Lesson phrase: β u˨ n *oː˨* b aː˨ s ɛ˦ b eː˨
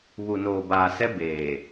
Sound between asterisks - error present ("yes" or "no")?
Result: no